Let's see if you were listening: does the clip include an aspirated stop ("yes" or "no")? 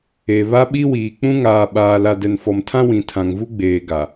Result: yes